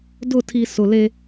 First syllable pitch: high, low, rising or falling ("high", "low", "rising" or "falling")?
falling